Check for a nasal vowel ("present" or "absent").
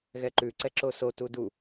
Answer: absent